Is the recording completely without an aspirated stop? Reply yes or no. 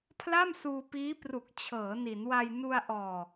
no